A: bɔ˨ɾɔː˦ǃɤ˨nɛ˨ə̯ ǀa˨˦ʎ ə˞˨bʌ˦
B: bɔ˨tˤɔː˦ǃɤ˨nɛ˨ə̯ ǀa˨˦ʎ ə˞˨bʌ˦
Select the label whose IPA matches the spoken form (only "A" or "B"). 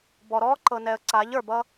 A